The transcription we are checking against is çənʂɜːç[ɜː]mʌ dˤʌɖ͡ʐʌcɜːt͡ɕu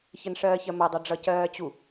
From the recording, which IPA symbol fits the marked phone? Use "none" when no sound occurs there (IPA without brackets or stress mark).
ɜ